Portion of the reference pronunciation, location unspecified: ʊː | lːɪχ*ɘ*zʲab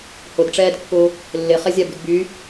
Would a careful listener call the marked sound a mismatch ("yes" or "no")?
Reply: yes